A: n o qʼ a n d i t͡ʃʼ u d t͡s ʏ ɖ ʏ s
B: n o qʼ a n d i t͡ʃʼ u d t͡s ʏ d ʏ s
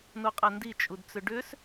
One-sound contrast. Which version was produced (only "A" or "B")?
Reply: A